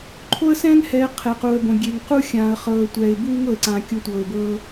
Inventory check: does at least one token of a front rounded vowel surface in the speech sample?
no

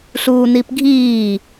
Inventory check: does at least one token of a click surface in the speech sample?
no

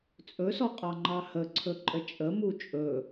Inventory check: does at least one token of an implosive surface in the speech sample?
no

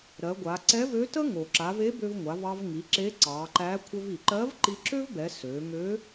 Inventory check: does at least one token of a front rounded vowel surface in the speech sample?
yes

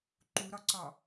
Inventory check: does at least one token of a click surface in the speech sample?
yes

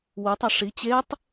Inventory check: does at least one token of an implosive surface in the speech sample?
no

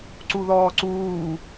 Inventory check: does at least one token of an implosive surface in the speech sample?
no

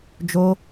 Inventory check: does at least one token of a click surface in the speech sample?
no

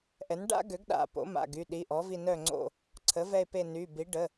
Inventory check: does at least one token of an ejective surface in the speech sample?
no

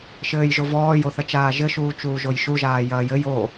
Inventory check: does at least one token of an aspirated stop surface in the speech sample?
no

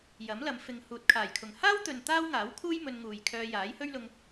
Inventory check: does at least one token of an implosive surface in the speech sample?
no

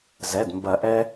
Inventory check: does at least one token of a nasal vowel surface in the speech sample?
no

